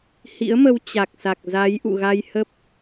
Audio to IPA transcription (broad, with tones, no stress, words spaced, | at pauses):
hḭ˧˥ə̯mə˧w t͡ɕa˨˩k̚sa˨˩k̚ za˨˦j ʔṵ˧˨ɣa˧j hə˦˥p̚